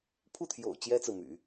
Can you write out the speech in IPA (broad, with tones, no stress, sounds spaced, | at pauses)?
pʰ u˥˩ t̪ʰ j o̰˨˩ ʊ̯ t͡ɕ j ɛ˥ t͡s ɹ̩˨ m y̰˨˩˦